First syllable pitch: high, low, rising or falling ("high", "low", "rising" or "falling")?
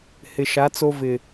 low